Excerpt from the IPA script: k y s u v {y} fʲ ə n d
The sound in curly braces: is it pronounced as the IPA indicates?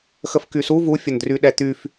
no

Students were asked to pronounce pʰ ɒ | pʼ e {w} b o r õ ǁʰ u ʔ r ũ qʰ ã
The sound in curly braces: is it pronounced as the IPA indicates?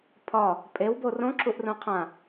yes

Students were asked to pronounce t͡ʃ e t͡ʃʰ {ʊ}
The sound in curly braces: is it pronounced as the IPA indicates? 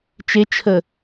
no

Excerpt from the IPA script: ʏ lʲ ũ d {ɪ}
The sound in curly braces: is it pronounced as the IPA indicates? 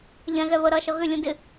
yes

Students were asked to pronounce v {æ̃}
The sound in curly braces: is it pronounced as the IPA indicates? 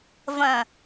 no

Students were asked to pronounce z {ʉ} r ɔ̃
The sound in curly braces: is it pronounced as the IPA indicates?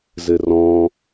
no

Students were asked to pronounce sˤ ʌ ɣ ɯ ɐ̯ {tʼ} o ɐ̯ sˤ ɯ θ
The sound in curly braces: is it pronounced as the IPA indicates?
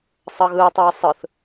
no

